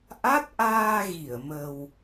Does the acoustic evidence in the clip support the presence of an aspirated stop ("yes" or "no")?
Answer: no